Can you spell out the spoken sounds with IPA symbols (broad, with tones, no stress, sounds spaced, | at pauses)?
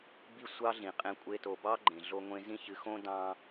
b i˦ sʷ ɑ˦ ɮ ĩ˨ qʼ ẽ˦ kʷʼ e˦ t o˨ b ɑ˦ ɡ͡ǃ ẽ˨ ɮ o˦ ŋʷ ẽ˦ z ĩ˦ ç ɨ˨˦ x õ˦ d ɑ̃˦